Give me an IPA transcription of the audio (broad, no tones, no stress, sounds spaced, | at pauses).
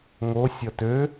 ŋ o sʲ ʌ t ø